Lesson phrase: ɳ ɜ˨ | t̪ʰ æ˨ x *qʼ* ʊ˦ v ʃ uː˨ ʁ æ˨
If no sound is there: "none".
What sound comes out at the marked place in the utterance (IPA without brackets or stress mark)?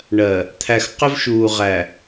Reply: q